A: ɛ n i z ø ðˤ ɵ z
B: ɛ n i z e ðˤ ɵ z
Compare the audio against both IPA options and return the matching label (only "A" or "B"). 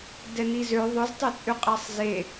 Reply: A